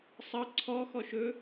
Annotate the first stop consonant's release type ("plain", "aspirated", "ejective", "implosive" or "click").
click